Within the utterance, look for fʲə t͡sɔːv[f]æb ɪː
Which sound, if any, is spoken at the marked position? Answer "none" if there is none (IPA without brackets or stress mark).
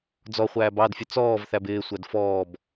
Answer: θ